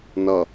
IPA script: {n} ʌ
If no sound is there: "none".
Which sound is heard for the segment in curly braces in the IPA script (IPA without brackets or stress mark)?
n